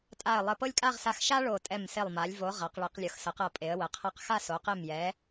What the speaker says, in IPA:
tʼ a˧˩ ə̯ lˠ ə˧˩ p ɤ˥˧ lʲ kʼ a˥˧ ʁ s a˧ x ʃ a˥ ɭ o˧˩ tʼ ɛ˧˩ m s e˧˩ lˠ m a˩˧ lʲ v o˩˧ ʁ a˩˧ q ɭ e˩˧ q lʲ ɤ˩˧ x s ə˩˧ q ɤ˧˩ pʼ e˩˧ ə̯ w ə˩˧ qʰ ɤ˧ q x a˥˧ s o˩˧ q e˧˩ m j ɛ˩˧

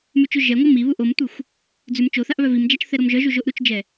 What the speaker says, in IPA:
m ʉ t͡ʃ ʉ ʒ ɛ ŋʷ ɤ m i β u ʔ o m tʷ ɯ xʷ | d͡z ʉ m t͡ʃ o θ a ʔ β œ v i m d͡ʒ a t͡ʃ θ ɛ ɾ o m ʒ œ ʒ u ʒ o ʔ ɾ u t͡ʃ d͡ʒ ɛ

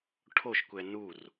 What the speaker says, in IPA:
ʈʰ o ʃ kʷ ɛ n u r

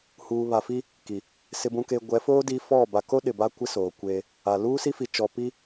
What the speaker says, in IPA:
h uː˨ β a˨ f i˦ | k i˨ | s ɪ˨ b ũ˨ k eː˨ ɡʷ ɛ˨˦ f oː˦ d i˦ f ɔ˦˨ b a˨ k o˦ ɗ ɪ˨ b a˦ kʷ ɪ˦ s oː˨ kʷ eː˦ | a˨ l uː˦ s i˦ f i˨ t͡ʃ ɔ˨ p i˦

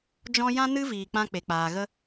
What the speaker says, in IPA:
d͡ʒ ɔ̃˦ j ã˦ n ɨ˦ v iː˨ k͡p ã˧ k͡p e˨ k͡p aː˨ ɣ ə˧

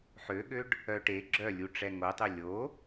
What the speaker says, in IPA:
ħ ø ɠ ø ɖ | œ ʈ e ɡ͡ǁ œ lʲ u ʈ͡ʂ ɛ ŋ o tˤ ø lʲ o

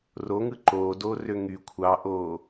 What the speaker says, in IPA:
r o ŋ ɯ ǃ oː d oː r ø ŋ y kʷʰ ɑ ʔ oː

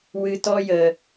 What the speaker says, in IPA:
w ɨ˨ t ɔ˧ j ə˨

